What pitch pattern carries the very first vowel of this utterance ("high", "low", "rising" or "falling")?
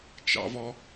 high